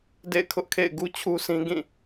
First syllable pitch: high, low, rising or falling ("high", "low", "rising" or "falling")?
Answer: falling